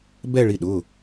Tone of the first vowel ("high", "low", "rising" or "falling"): falling